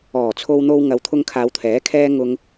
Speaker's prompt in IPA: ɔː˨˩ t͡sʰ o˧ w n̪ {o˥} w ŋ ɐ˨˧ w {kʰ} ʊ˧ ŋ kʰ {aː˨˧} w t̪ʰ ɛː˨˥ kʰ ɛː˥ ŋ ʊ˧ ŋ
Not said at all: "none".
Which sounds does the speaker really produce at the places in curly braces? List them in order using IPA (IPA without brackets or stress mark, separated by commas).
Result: o˧, t̪ʰ, aː˨˧